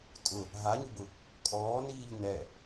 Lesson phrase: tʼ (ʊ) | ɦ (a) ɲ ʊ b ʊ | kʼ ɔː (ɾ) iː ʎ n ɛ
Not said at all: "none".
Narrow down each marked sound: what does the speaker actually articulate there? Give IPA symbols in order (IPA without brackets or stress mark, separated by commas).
ʊ, a, n